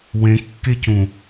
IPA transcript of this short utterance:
w ẽ kː e c ũ

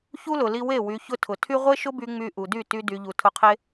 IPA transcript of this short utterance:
ç u˦ l ʊ˨ l i˧ w e˦˨ w y˨ ç ʊ˧ tʰ ʊ˨ tʰ y˦ ʁʷ e˦ ʃ ʊ˦ b y˧ ŋ͡m y˧ ʔ u˨ d y˦˨ t y˧ d y˨ ʎ u˨ tʰ ʊ˧ qʰ e˦

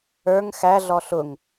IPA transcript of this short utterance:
ə˞ ŋ x æ ɮ ɔ ɬ ʊ ŋ

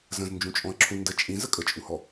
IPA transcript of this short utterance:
z ə̃ z n d͡ʒ ũ t͡ʃʼ ɔ̃ ə̯ ǁʰ ũ n d ə t͡ʃʼ ĩ z ə kʼ ə t͡ʃʼ u h ɔ

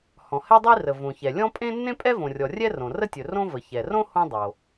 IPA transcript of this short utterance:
h ɔ̃˩ h ɛ˥ dˤ i˥ r ə˩ v õ˩ ç ɛ˩ lʲ ɔ̃˥ pʼ ẽ˥ nː ẽ˥ pʼ ɛ˥ v õ˩ rʲ ɔ˩ rʲ ɛ˥ r õ˩ r ə˥ tʲ ɵ˩ r õ˥ v ə˩ ç ɛ˩ r õ˥ h õ˥ dˤ o˩

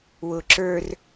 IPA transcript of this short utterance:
w ʊ ǁ ə˞ r

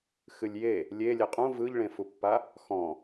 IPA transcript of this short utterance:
x ɨ lʲ j e | lʲ e lʲ e qʼ ũ v ɯ ʎ ɭ ẽ f u pː a | x ɔ̃

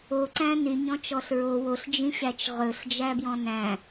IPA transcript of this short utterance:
o ǀ æ̃ n y ɲ ɔ̃ t͡ʃ ɔ ɬ ɹ o w o ɬ d͡ʒ ĩ ɕ æ t͡ʃ ʁ ɵ ɬ d͡ʒ æ b j ɔ̃ n æ̃

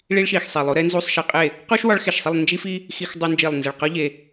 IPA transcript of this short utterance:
ɭ i˧ ɭ ʃ i˨˩ x sˤ e˨˩ lˠ o˧˥ ɾ e˥ n z u˧˥˧ sˤ ʃ e˧ qʼ e˥˨ | q u˥ ʃ w ɒ˧˥ ɭ x e˨˩ ʃ sˤ i˥˨ lˠ n d͡ʒ i˥ f i˥ | x i˧˥˧ x dˤ o˧ n d͡ʒ i˨˩ lˠ n z e˨˩ ɭ q ɒ˥ ʎ e˧

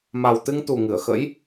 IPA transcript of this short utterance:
m a˨˩ w t̪ ɨ˧ ŋ t̪ u˨˩ ŋ ɨ˧˩ ə̯ x ə̰˧˥ j

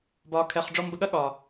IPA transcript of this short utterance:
b ɒː˨ kʰ ɛ˨ χ ɖ͡ʐ ɔ˧ m b ə˧ ɠ ɐ˦ ɠ ɒ˨

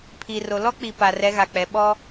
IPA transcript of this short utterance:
pʰ i˨ r o˨ l ɔ˦ k͡p i˨ p a˨ r ɛ˨˦ ɣ a˨ k͡p ɛ˨ ɓ ɔ˦

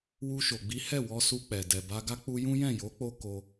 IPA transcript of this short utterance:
w u˧ ʃ o˨ ɡ͡b i˨˦ h ɛ˦˨ w ɔ˧ s u˧ k͡p ɛ˨ d ɛ˨ b a˧ ɡ a˦ k͡p u˦ j ũ˦ j ɛ̃˦˨ j o˨˦ k͡p o˧ k o˧

